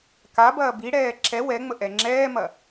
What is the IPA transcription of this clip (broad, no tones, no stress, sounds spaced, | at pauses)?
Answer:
k a b ɐː b i ɽ ɛː ǁ ɛ w ɛ ŋ͡m ə ʔ ɛ ŋ͡ǁ ɛː m ɐ